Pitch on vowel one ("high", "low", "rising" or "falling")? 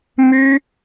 high